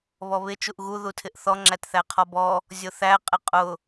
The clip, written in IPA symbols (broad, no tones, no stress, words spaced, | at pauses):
βɔβɪ t͡ʃuʔɣu ðutʰɪʔθɔ ŋ͡ǁætθæqʰɔbɔ | zʲʊθæ qʼɪqʼʊ